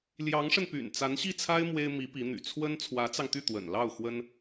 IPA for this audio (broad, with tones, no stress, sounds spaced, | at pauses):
l j ɑ˧˥ ŋ ʂ ə˧ n p y̰˨˩ n t͡s a˧˥ n ɕ i˥˩ t͡sʰ a˥ ɪ̯ m w e˥ ɪ̯ m i˧˥ p i˧˥ n̪ y̰˨˩ t͡sʰ w ə˥ n t͡sʰ w ä˧˥ t͡s ɑ˧ ŋ t̪ y˥˩ t̪ w ə̰˨˩ n l ɑ˥˩ ʊ̯ x w ə˥ n